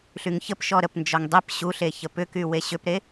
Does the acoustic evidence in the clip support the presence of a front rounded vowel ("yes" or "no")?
yes